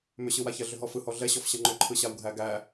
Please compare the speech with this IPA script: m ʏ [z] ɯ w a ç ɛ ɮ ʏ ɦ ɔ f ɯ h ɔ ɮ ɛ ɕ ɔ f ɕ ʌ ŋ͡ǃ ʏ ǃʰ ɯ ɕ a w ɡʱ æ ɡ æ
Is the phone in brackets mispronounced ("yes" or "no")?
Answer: yes